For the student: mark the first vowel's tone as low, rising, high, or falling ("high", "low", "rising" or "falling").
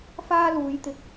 high